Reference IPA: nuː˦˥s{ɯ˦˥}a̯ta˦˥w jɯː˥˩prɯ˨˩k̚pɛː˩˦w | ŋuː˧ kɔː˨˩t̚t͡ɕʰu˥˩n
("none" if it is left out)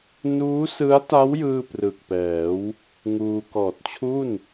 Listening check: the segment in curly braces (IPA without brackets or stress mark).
ɯ˦˥